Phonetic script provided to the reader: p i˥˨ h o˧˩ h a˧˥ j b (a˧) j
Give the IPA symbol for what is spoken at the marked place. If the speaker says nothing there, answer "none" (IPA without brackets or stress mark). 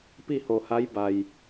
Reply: a˩